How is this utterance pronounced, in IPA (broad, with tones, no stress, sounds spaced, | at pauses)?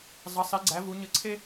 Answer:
zˤ ə˩˥ sˤ i˩˥ ɡ͡ǀ æ˩˥ v u˩˥ ɲ ə˧ ǀʰ e˥